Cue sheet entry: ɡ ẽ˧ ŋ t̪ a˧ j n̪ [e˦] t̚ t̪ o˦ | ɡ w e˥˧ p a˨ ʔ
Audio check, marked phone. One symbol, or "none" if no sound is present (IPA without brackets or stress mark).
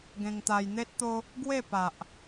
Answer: e˦